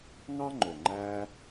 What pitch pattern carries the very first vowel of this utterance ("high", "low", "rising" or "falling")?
high